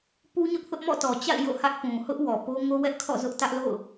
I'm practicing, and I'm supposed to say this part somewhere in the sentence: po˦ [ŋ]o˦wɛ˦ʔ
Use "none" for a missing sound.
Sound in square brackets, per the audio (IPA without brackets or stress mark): ŋ